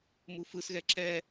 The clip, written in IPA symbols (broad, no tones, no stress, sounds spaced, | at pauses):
m u f ɯ s ɣ ɛ ǁ ɛ